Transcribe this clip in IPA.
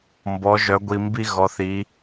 mbɔ˧˥ʒœ˧˥ ɡʷi˧mbi˥ ɣɔ˧˥θi˧˥

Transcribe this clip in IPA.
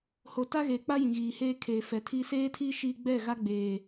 ho˨ta˦ɣeː˨k͡pa˦ jĩ˨ɣiː˨heː˦kʰeː˨ fɛ˨tʰi˦ seː˦tʰiː˦ ʃiː˦ ɡ͡bɛ˦˨ɣa˦ɡ͡beː˨

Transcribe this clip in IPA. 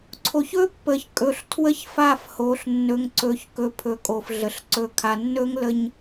ǀʰo˨çɵ˦pːə˨çkʼɵ˨ɬ tʰwə˦çfa˦˨fho˨ɬ nːɵ˨ŋǀɵ˨çkɵ˨ pʰɵ˨kʼo˨f ɮə˨ɬ ǀɵ˨kʰa˨ nːɵ˦ŋlə˦ɲ

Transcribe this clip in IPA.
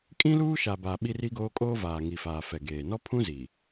kʼĩ˦luː˦ʃa˨ba˨ ɓi˦ri˦ɡoː˦ kʼoː˦vaː˨ŋi˨faː˨ fɛ˨ɡeː˨ nɔ˦pʰũ˦ zi˨

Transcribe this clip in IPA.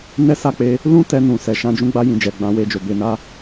nɛ˦sa˦˨k͡pe˧ | lũ˦ tɛ˧nũ˨ sɛ˨ʃã˧ d͡ʒũ˧ɡ͡ba˧jĩ˨d͡ʒɛ˨ ɡ͡bã˨˦we˧d͡ʒo˨ be˨na˧

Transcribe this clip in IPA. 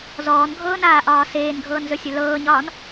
zɔːnɡʱɤːnaːʔɒː seːnɡʱɤːnzɵsʲɵ lɤːɲɒːn

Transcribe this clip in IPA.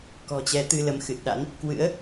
kɔ̤˨˩t͡ɕɛ˨˦t̪ɨ˧lə˨˦m xɨ˨˩t̚ɗa̰˧˥n | kwɨ̰˧˥ə̯

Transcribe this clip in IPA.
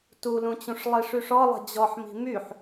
tulũt͡ɕũʂ lˠiʂyʂɔlˠə̤ d͡ʑɔħmi̤ myħ

